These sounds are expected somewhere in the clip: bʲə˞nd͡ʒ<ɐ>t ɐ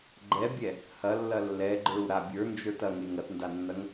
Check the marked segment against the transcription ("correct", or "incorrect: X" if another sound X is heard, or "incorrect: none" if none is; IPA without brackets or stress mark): incorrect: ə˞